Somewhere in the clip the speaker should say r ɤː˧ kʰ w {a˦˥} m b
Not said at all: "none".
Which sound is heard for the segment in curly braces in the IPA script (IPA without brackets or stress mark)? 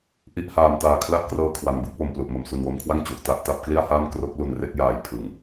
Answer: a˩˦